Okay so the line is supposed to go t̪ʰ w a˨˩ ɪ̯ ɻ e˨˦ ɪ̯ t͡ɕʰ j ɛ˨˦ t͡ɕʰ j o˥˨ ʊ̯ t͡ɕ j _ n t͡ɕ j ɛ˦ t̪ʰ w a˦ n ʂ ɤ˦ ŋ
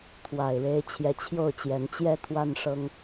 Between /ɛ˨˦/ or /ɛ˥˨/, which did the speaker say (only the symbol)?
ɛ˨˦